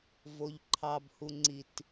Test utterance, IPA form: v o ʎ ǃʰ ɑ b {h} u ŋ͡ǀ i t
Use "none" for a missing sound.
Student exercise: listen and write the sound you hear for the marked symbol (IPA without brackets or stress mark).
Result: h